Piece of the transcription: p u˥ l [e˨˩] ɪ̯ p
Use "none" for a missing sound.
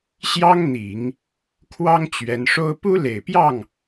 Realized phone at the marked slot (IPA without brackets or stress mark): e˨˩